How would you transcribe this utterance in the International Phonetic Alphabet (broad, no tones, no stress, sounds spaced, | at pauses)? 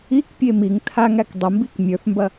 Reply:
i k pʲ e m i ŋ tʰ a ŋ æ k dˤ ə m b i k mʲ ə˞ θ m b ɐ